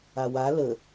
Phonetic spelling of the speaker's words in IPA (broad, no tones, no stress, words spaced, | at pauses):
awa lə